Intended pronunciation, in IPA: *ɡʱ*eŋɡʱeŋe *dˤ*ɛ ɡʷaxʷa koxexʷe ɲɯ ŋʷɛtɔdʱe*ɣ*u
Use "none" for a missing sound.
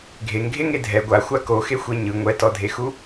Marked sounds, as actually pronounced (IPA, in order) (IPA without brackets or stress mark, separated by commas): ɡʱ, dʱ, x